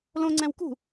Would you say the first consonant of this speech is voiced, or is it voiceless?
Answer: voiced